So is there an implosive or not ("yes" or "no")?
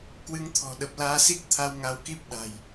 yes